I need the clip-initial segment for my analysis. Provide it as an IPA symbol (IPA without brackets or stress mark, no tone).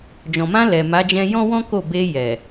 d͡ʒ